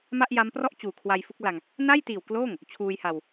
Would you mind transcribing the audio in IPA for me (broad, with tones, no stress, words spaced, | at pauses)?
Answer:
ma˥˩ʔ ja˦˥mprɔ˥˩ʔt͡ɕuː˨˩ kʰwa˧jfu˦˥k̚la˧ŋ | na˥˩jtiː˨˩w kloː˥˩ŋ | t͡ɕʰuː˧jha˧w